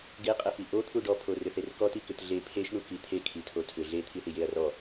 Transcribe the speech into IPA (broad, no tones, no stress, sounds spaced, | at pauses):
ɡ e qʼ ɛ f i ʔ o t̪ʰ u ɖ ɔ pʰ o r ʏ θ e r k ɔ t i k ʏ t ɮ e pʰ e ʃ ɳ u k i t̪ʰ e kʰ i tʰ o tʰ ʏ ɮ e t̪ʰ i θ i j e ɐ̯ r ɔ